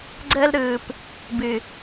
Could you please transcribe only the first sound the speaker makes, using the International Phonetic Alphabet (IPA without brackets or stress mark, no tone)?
ɡ͡ǀ